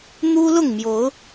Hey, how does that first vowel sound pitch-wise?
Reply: high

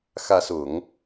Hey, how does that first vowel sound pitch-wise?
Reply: rising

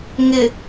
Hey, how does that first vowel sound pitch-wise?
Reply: low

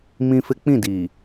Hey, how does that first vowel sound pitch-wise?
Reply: high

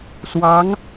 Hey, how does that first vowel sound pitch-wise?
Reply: rising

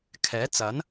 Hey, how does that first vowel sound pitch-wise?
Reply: rising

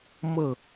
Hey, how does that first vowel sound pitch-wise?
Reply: falling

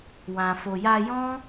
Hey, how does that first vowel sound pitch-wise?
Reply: low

